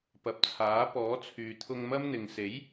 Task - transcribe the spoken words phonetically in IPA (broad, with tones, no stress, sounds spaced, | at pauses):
p ɐ˨ p̚ t͡sʰ aː˨˥ p ɔː˨˥ t͡sʰ yː˨ t̪ʰ ʊ˧ ŋ m ɐ˥ m n̪ ɪ˨ ŋ s e˨˥ j